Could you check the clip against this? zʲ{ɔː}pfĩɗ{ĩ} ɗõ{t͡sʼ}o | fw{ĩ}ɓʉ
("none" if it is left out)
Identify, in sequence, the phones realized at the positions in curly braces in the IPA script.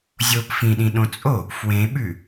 oː, ĩ, t͡sʼ, ẽ

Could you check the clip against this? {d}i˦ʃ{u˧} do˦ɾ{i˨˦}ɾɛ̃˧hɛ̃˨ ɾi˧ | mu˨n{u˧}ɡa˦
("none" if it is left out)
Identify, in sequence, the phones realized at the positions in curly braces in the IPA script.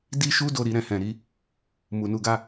d, u˦, i˦, u˧

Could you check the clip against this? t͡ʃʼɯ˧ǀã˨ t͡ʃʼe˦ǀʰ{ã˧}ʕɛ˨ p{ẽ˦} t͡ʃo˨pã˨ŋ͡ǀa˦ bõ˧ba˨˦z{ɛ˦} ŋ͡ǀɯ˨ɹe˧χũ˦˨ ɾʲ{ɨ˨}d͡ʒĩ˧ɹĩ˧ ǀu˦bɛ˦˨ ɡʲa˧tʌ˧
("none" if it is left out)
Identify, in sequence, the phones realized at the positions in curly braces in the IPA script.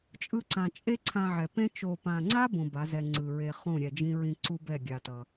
ã˧, ẽ˦, ɛ˧, ɛ˨

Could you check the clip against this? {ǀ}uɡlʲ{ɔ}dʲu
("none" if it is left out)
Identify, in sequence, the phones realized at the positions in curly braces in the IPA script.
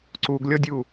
ǀ, ɔ

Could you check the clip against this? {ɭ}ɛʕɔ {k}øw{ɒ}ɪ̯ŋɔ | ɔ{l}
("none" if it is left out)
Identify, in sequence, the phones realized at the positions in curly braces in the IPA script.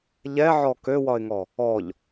ʎ, k, ɒ, ʎ

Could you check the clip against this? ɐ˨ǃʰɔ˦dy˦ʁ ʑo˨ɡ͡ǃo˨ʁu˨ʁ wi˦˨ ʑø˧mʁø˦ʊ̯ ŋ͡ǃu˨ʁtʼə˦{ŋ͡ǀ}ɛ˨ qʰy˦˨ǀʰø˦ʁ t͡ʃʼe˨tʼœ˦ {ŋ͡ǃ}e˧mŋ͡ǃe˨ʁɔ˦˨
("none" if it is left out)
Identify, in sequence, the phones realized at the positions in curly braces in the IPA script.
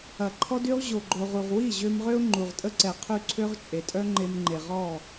ǀ, ŋ͡ǃ

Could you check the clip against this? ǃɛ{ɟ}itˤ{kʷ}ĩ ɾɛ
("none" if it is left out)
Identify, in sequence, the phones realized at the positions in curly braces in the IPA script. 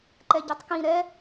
ɟ, k

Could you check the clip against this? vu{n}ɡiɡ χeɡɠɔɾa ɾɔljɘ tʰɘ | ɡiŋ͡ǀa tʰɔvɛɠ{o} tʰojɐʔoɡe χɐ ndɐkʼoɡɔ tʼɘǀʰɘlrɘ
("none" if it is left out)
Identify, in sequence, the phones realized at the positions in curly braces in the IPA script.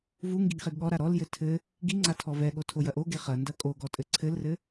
ŋ, o

